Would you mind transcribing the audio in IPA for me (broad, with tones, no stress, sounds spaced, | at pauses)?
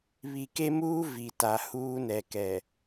β i˨ k e˦ m uː˦ v i˨ t a˨ h uː˦ n ɛ˨ k ɛ˨